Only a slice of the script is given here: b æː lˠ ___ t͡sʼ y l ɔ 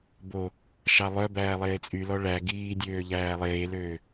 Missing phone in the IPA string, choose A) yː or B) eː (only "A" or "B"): B